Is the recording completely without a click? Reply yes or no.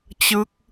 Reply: yes